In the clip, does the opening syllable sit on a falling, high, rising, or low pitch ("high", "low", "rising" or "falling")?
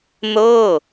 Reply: falling